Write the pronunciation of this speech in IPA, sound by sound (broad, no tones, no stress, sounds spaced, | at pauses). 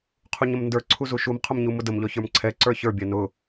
qʰ u ɲ ə m n d ə˞ ǀʰ u z u ʃ u m qʰ ʊ m ɲ u m ʊ d ə m ʎ ɔ ç ə˞ m ǀʰ ɛ ǀ ə˞ ç ə˞ bʲ ɛ n ʊ